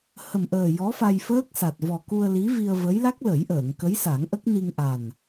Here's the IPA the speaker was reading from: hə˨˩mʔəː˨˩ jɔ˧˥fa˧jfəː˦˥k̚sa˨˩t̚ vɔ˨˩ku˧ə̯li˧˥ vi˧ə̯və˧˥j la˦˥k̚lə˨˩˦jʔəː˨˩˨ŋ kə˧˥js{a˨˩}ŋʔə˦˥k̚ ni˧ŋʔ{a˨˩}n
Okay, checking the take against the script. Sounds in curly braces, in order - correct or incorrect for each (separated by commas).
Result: incorrect, correct